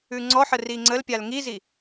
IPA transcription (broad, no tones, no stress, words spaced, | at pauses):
ʉŋ͡ǀɔħə riŋ͡ǀəlpʲal ŋizi